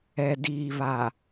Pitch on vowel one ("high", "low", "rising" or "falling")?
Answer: low